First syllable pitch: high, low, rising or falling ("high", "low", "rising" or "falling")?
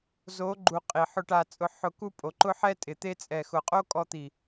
rising